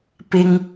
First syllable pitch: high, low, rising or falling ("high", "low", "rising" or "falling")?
high